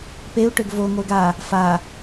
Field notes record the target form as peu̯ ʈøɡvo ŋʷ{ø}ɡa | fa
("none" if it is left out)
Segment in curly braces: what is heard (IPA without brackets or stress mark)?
e